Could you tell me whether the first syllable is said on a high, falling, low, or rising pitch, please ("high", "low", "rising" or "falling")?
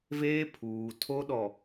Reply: high